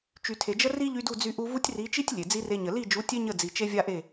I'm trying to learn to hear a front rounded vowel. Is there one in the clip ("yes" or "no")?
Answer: yes